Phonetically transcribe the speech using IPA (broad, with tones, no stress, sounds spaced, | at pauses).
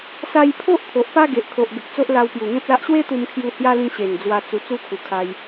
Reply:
s a˧ j pʰ o˦ ʔ t̪ʰ o˨ ʔ p a˦ ɡ e˨ ʔ kʰ o˨ ʔ ɡ ə˨ k̚ t͡s o˦ ʔ l a˧ w p j u˨˩ ŋ ẽ˦ p̚ l a˦ ʔ ɕ w e˦ t̪ u˧ m kʰ j u˧ h j a˦ l ĩ˧ ɕ e˨˩ n d͡z w a˧ t͡s u˧ t͡s u˦ kʰ u˨˩ kʰ a˧ j